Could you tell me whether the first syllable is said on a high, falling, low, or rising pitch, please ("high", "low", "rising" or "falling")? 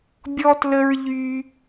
high